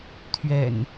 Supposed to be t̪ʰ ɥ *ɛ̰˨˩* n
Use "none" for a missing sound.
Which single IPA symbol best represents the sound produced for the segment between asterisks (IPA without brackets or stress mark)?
ɛ̰˨˩